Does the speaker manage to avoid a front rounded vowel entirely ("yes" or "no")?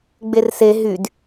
no